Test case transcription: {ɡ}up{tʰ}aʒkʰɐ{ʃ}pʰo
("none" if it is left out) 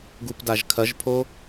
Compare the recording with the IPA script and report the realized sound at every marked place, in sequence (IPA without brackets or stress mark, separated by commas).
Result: ɡ, d, ʒ